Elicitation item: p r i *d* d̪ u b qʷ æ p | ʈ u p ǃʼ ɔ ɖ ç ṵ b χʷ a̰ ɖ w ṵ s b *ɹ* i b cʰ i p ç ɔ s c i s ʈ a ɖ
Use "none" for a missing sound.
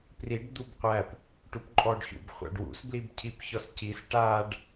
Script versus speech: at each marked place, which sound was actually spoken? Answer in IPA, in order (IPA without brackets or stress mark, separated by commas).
ɖ, l